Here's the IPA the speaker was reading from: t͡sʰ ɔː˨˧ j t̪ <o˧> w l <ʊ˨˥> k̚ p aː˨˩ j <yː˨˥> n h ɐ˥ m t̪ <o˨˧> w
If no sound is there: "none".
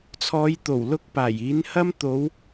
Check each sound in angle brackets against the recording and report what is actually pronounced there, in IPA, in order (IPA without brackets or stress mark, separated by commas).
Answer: o˨˩, ʊ˨˥, iː˨˥, o˨˧